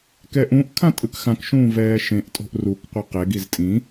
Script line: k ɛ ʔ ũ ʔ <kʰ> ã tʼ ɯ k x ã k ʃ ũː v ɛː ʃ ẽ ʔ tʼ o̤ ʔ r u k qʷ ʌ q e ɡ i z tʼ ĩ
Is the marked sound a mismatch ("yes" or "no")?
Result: no